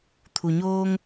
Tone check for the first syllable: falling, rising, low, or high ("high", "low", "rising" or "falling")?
low